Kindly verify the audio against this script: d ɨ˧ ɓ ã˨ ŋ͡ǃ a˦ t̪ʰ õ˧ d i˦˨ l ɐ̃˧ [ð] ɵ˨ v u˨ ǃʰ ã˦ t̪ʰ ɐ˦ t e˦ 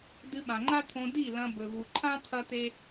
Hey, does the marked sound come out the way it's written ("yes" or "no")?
no